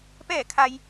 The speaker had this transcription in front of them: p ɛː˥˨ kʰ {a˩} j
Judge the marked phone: incorrect: a˧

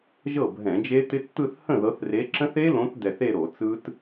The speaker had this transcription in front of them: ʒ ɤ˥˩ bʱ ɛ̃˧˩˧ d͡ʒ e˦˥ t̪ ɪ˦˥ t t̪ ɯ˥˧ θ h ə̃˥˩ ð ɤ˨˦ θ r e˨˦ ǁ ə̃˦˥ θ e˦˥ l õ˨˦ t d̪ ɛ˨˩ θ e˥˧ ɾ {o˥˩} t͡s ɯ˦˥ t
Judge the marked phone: incorrect: o˧˩˧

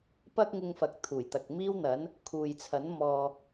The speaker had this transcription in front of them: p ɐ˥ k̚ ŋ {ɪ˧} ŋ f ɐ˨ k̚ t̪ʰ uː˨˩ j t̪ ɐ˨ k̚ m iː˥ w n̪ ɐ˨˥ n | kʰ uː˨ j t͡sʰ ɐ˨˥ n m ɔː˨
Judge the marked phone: correct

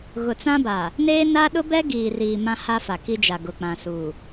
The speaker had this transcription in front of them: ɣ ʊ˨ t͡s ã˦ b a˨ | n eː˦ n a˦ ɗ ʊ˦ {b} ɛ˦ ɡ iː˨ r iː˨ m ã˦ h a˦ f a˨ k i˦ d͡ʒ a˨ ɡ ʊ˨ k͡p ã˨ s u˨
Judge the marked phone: correct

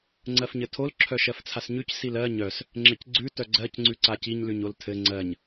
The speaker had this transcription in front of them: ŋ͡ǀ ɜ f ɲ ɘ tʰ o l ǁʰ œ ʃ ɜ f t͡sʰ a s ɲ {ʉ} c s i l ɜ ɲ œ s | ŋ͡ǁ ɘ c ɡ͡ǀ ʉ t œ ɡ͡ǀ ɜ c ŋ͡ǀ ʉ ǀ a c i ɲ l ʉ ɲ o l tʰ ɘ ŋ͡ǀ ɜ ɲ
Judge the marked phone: correct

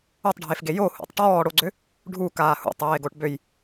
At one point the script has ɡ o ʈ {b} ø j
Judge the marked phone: correct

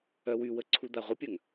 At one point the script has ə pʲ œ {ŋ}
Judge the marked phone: correct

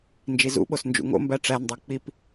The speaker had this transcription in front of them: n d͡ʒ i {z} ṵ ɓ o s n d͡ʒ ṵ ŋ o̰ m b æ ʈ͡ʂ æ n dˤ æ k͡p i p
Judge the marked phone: correct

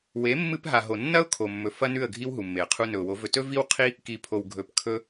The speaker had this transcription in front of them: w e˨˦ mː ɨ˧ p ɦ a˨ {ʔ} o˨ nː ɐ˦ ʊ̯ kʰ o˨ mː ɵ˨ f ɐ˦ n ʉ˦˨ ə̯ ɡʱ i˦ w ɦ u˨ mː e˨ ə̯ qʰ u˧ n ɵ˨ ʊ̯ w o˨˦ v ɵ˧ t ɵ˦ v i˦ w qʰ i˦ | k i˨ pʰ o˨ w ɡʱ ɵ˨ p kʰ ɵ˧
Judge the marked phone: incorrect: ɦ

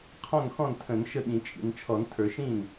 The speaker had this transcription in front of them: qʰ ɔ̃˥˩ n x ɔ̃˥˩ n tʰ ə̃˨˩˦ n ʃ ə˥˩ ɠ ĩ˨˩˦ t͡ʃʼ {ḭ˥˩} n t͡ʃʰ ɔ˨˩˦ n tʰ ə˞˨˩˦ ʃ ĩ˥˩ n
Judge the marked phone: incorrect: ḭ˨˩˦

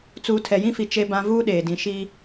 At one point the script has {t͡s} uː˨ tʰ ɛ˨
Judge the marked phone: correct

